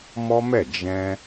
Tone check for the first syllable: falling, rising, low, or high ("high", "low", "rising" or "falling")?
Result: high